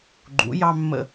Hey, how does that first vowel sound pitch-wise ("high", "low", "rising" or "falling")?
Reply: rising